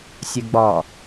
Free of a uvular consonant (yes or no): yes